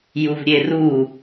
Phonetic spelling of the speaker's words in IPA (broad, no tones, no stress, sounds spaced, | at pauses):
j u v ɾʲ e r u